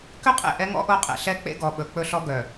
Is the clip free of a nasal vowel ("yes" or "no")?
yes